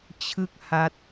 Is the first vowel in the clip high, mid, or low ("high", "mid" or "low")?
high